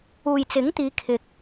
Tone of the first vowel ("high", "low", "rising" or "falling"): low